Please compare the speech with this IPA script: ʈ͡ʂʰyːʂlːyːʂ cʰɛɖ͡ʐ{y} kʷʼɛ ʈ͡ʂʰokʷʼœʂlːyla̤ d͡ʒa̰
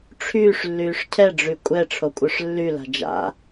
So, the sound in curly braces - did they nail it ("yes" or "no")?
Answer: yes